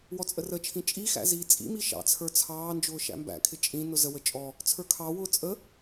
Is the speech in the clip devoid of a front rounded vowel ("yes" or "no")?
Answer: yes